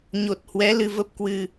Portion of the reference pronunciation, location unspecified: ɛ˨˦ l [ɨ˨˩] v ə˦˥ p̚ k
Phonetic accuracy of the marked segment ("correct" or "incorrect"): incorrect